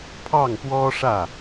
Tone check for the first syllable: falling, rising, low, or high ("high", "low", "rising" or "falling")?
falling